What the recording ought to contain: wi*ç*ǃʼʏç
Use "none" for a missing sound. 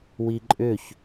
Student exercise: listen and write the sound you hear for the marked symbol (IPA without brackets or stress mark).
none